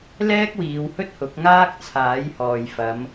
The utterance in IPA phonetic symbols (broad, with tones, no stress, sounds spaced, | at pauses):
l ɛː˥ k̚ w iː˨˧ w h ɵ˥ t̚ h ʊ˨˥ k̚ ŋ aː˥ k̚ t͡sʰ aː˨˥ j h ɔː˨ j f ɐ˨˧ m